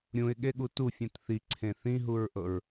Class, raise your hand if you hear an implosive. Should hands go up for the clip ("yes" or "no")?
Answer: yes